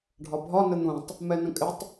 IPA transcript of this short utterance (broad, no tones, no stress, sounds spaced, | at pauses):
ɖʱ ɒ bʱ ɒ n ə n̪ ũ tˤ | m ɛ n ə̃ kʼ ɪ tˤ